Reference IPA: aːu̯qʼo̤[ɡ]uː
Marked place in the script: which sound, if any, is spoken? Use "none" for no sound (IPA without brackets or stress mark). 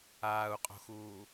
x